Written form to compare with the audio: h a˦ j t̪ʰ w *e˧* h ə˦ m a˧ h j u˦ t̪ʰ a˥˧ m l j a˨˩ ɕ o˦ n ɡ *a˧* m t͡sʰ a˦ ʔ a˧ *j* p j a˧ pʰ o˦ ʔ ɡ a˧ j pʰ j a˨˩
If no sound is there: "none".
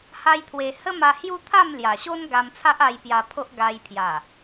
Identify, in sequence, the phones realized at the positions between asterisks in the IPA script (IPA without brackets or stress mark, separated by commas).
e˧, a˧, j